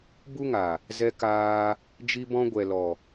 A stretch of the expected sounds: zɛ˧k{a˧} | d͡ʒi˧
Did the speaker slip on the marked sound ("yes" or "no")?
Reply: yes